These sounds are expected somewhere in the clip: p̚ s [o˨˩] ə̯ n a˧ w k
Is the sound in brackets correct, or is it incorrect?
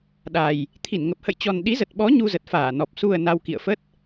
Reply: incorrect